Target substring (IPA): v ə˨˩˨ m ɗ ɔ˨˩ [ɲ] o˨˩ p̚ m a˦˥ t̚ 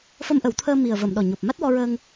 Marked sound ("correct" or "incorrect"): correct